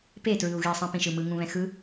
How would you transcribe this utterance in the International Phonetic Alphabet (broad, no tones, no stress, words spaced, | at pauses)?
petɹɯu̯ɣisˤɛ̃ pĩʃɯmɯŋũ βɛ̃xɯ